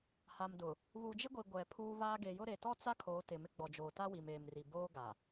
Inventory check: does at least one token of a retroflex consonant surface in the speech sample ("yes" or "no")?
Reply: no